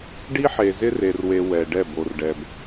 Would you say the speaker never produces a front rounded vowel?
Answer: yes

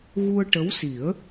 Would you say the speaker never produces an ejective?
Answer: yes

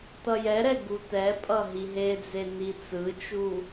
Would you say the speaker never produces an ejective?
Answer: no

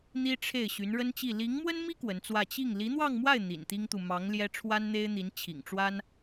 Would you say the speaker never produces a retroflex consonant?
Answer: no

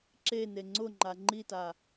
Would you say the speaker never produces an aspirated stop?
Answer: yes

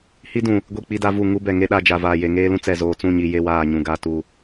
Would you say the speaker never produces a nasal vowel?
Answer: no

